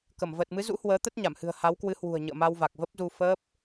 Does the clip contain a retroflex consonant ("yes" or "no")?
no